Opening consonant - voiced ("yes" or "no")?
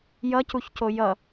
yes